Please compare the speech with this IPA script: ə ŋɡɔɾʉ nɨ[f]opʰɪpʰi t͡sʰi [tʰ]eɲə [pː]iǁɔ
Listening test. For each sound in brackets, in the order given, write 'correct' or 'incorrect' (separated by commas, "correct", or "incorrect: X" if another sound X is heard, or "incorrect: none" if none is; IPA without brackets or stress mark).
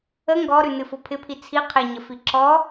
correct, incorrect: qʰ, incorrect: f